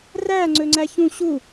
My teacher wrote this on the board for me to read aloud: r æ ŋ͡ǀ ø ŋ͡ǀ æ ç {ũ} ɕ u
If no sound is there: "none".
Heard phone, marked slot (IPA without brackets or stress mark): ũ